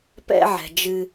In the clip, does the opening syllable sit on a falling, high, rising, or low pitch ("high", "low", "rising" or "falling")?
high